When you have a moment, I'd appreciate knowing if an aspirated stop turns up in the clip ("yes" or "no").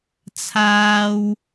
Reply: yes